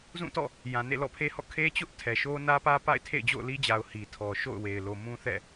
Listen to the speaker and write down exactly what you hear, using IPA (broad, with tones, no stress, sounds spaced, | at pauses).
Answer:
z ũ˦˨ t ɔ̰˦˨ | j ã˨ n ḛ˦˨ l ɔ̰˦˨ pʰ e˦ h ɔ̰˦˨ kʰ e˦ t͡ɕ ʊ˦ ʔ tʰ ɛ˨ ʃ o˦ n ä˦ p ä˦ p a̰˦˨ ɪ̯ tʰ ḛ˦˨ ɪ̯ d͡ʑ o̰˦˨ ʊ̯ l i˦ d͡ʑ a˨ ʊ̯ h i˨ tʰ ɔ˨ ʃ o̰˦˨ ʊ̯ w e˨ ɪ̯ l o˨ m ũ˦ θ ɛ̰˦˨